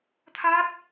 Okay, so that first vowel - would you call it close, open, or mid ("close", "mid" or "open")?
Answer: open